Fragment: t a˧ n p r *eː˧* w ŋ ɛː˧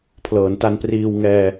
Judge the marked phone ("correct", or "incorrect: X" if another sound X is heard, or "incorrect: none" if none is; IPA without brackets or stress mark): incorrect: iː˧